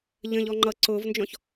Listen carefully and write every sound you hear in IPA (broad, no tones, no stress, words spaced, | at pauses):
ʎə̃ʎɔ ŋ͡ǃʌ ǀʊːvnd͡ʒɔ̃ç